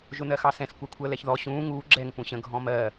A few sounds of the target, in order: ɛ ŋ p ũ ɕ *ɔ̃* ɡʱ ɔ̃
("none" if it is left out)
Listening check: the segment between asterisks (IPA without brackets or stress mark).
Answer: ə̃